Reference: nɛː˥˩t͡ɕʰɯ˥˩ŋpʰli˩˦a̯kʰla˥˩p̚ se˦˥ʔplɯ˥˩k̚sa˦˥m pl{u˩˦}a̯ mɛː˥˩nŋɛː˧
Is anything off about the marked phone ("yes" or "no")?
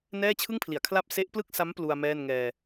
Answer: yes